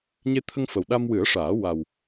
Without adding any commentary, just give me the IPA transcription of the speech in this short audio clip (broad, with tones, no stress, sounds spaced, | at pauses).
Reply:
ɲ e˧ t̪ʰ ə˧ ŋ f ə˨˩ w ɗ a˧ m w ɨ˨˩˦ ə̯ ʂ aː˨˩˦ w a˨˩ w